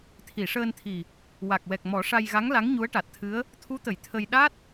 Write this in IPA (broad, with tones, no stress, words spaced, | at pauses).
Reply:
t̪ʰi˨˩˨ʂəː˧nt̪ʰi˨˩ | wa˨˩k̚wɛ˨˩k̚mɔ˨˩˦ ʂa˧jɣa˧˥ŋla˧˥ŋ ɲu˧˥ə̯ʈa˨˩t̚t̪ʰɨ˧˥ə̯ | t̪ʰu˧˥t̪ə˨˩˨j t̪ʰə˧j ɗa˦˥t̚